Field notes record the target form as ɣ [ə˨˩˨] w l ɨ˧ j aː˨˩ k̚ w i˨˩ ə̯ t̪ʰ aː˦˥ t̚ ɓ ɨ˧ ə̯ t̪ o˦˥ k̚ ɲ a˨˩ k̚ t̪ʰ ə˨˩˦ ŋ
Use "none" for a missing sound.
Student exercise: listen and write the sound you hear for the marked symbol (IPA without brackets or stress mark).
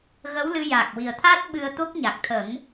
ə˧˥